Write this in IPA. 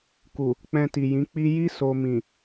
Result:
ku˨ | k͡pɛ̃˧ti˨jĩ˨˦k͡pi˦ ji˦ so˧mĩ˨

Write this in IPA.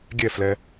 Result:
ɡʲɛflɛ

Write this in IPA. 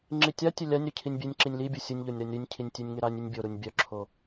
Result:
ŋ͡ǁitʲatʲœ lʲanʲ ɾycʰinʲbʲenʲǁinʲ libʲu sʲənʲʎonʲ ɾanʲɾynʲcʰinʲ tʲenʲŋeɾanʲynʲ bʲoɾunʲ bʲœǁʰo

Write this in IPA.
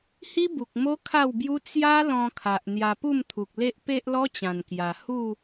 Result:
hi˦bu˨k̚ mo˦kʰa˥˧wbju˦ t͡sja˦ lɔ̃˧kʰa˨ʔ n̪ja˧pu˥˧mt̪ʰu˨k̚le˦ʔ pe˦ʔlɔ˦t͡ɕã˨˩nkja˨˩ hu˥˧

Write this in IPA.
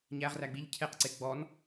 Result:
ɲæʁræ ɡ͡biʎ cʰeqǀe ɡ͡bɔn

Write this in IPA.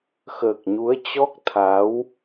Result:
xəː˨˩k̚ɲu˨˦ə̯t͡ɕɔ˦˥k̚t̪ʰa˨˦w

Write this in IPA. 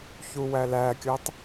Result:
çuwælækʲɤtˤ

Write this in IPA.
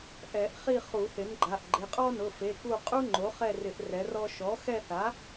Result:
ʔɛ˨˩˦ʔ χi˦˨ χu˨˩˦θɪ˩˥nɡ͡ǃa˩˧˩ʔɡ͡ǃɪ˩˧˩ qʼɔ˥nʊ˩˧˩fe˩˧˩ku˦˨ qʼu˥ŋ͡ǃo˩˥χɛ˦˨rɪ˨˩˦ʔ rɛ˩˥rɔ˥ ʃɔ˩˥xɛ˦˨θa˩˥

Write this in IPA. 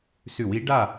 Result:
sʉ˧˩˧wi˩˥ ɖa˥˨

